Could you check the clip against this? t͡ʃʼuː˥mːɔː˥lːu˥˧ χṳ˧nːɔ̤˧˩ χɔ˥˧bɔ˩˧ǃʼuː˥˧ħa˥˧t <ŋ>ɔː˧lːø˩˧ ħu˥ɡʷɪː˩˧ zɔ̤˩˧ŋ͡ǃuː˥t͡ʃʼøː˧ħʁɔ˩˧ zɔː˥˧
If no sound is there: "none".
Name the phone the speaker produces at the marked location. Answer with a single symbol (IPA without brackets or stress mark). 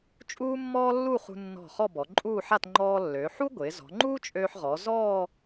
ŋ͡ǃ